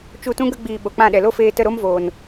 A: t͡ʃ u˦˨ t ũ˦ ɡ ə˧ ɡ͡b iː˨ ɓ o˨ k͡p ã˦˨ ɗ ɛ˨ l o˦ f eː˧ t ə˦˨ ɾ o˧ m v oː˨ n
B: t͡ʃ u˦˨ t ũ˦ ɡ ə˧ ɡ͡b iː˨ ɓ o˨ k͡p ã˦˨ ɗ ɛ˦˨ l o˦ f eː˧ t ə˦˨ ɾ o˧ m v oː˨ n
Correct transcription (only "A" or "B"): A